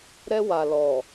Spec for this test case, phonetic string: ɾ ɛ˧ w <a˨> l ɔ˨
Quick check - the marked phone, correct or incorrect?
correct